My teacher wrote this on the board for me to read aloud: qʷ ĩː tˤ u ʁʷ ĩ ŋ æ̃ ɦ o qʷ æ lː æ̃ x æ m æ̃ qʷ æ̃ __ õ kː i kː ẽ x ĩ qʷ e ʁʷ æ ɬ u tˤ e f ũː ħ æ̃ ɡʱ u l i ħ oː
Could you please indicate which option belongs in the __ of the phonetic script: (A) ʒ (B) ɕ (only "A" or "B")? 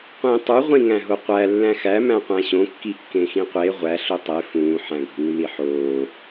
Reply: B